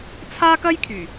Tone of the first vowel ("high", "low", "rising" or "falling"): high